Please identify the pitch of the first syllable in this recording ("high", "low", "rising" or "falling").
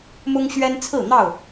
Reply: high